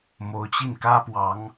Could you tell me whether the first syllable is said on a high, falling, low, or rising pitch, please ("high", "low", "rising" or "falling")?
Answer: rising